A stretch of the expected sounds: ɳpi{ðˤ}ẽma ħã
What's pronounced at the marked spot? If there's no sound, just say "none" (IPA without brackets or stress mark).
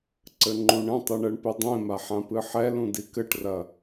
dˤ